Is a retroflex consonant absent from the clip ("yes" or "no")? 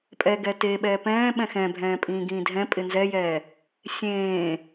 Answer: yes